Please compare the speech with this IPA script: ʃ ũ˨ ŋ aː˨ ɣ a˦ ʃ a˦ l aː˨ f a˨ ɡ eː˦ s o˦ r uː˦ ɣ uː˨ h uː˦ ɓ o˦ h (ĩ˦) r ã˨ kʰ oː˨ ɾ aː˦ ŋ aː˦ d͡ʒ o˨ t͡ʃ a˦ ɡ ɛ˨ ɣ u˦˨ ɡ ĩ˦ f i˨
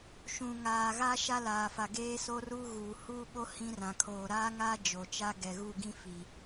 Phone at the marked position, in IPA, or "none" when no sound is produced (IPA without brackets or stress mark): ĩ˦